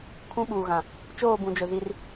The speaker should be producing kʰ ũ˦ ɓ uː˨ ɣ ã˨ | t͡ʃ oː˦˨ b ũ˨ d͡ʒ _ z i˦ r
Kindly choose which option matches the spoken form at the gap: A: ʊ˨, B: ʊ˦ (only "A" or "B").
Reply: A